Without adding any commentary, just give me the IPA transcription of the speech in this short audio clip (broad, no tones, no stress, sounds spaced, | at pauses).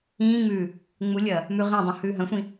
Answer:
ĩː ŋ͡m ʉː | ŋ͡m u lʲ ɐː | m ʉ ʁ ĩ dˤ ũ h ʉː ɦ ɐ̃ sʷ ĩ